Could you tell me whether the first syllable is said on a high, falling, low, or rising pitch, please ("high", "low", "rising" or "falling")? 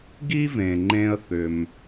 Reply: high